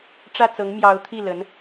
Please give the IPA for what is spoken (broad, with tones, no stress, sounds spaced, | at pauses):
ʈ͡ʂ ä˥˩ t͡s ɤ˧˥ ŋ m j ɑ˧˥ ʊ̯ t̪ʰ i˥˩ l ə˧˥ n